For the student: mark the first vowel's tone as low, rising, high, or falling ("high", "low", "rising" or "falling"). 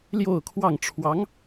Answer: falling